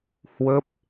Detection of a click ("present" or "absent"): absent